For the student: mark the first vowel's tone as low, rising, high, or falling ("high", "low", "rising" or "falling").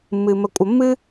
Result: low